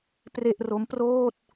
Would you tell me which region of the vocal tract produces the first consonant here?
lips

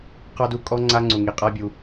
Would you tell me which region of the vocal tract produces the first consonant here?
uvula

